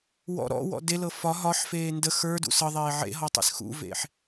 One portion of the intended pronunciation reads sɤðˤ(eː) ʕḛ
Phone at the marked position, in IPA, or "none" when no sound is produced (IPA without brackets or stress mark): eː